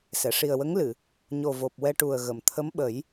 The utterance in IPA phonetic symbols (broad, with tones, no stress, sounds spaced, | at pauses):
s ɛ˨˩˨ ʂ i˨˩ ə̯ w ə˧˥ ŋ l ɨ˨˩˨ | ɲ o˨˩ v o˨˩ p̚ w ɛ˧ ʈ u˨˩ ə̯ ɣ ə˨˩˨ m t̪ʰ ə˧˥ m ɓ ə˨˩˦ j